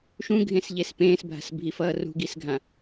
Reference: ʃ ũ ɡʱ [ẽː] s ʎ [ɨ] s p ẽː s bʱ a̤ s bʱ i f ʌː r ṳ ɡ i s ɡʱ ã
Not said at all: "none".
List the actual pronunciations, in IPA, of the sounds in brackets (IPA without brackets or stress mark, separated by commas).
ẽ, e